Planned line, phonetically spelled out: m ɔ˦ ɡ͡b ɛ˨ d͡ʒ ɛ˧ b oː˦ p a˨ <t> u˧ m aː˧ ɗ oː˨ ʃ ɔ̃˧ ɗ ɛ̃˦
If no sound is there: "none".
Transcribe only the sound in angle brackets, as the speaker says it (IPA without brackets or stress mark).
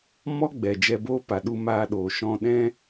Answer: ɗ